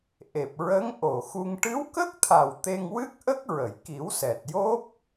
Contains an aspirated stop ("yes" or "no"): yes